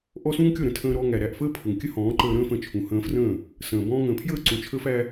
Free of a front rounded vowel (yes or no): yes